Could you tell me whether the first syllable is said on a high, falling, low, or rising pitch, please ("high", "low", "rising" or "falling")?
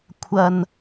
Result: low